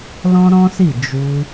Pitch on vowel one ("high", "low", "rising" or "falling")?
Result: high